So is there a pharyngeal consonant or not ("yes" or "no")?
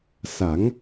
no